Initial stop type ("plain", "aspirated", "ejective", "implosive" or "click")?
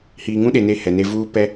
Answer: implosive